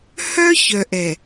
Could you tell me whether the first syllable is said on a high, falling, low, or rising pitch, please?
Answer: high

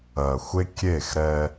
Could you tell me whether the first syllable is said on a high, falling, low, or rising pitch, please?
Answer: low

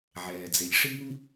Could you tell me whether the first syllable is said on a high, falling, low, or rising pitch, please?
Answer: low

